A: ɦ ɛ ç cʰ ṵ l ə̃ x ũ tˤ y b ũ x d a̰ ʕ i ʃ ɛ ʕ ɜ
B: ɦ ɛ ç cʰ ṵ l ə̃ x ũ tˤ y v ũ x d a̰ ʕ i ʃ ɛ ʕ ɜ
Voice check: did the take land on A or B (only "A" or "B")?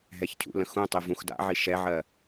B